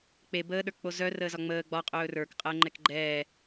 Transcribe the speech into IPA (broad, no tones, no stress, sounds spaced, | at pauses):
k͡p e b əː ɗ ə˞ k k͡p o z œ r əː z ɒ ŋ͡m əː ɡ͡b ɒ qʼ ɵː r ə˞ k qʼ əː ŋ͡ǃ ɛ k ɡ͡ǃ ɛː